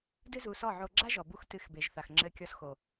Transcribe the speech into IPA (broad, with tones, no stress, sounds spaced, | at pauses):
d ɨ˦ z u˧ s ɔ˦˨ ʕ o˧ ɡ͡ǁ a˦ ʒ ɔ˨ b u˧ x t ɨ˨˦ x b e˨ ʒ θ a˨ x ŋ͡ǁ ɘ˧ kʲ ɔ˧ s x o˨